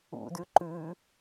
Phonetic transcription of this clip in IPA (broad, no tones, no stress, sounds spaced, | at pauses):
ṵ d ʉ ǃ ʉ